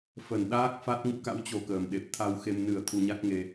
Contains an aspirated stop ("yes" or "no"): yes